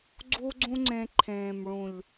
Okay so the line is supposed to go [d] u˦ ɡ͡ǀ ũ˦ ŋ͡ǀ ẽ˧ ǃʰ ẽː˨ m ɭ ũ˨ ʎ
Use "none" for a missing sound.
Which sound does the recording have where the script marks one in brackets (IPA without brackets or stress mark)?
ɡ͡ǀ